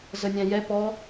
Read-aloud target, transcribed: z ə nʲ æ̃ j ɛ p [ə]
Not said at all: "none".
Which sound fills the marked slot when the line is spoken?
ɔ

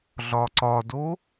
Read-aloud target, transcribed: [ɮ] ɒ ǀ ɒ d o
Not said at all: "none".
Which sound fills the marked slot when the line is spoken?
ɮ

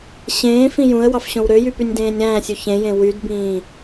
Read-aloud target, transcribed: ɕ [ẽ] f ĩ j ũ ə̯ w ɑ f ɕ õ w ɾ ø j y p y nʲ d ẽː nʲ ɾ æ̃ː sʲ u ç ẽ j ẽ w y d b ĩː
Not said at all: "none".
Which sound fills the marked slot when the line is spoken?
ẽː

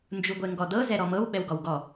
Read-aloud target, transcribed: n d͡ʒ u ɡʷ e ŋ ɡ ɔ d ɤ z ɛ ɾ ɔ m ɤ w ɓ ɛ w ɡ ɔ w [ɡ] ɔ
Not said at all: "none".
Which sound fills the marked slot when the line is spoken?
ɡ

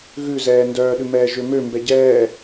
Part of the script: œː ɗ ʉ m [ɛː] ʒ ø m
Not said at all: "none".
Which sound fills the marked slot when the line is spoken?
ɛː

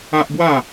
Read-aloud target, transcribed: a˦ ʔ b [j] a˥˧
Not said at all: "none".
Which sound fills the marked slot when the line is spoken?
w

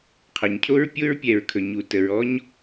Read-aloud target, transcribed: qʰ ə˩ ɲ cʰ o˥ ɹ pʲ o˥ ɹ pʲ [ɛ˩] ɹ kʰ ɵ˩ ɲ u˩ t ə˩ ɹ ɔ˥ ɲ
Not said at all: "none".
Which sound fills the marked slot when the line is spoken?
ɛ˩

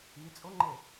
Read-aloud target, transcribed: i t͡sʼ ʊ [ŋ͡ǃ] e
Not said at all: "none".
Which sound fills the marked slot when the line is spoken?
ŋ͡ǃ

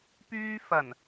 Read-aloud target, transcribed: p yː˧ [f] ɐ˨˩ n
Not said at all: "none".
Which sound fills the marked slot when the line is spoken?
f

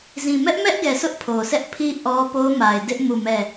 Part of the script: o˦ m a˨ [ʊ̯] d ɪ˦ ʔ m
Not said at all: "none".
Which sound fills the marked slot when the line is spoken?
ɪ̯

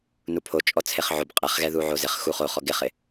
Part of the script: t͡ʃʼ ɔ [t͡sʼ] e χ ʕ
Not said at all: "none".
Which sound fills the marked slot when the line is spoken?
t͡sʰ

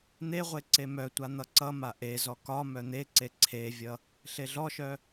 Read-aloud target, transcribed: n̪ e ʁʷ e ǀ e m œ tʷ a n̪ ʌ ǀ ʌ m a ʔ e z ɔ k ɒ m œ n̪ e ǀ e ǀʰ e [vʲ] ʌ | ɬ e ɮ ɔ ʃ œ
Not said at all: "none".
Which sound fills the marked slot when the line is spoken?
vʲ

